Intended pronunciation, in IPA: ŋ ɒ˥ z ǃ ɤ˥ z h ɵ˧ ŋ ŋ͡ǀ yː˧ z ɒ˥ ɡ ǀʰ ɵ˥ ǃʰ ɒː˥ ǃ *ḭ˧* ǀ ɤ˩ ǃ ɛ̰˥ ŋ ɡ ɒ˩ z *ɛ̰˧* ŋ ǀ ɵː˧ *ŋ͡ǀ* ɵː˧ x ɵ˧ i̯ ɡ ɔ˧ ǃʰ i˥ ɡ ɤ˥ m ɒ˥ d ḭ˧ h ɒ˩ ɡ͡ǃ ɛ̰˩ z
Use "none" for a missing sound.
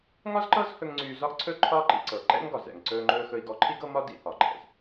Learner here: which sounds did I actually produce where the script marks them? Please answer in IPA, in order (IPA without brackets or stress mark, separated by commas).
ḭ˧, ɛ̰˩, ŋ͡ǃ